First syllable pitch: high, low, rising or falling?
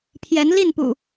rising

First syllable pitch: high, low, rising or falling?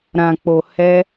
low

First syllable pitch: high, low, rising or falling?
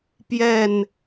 falling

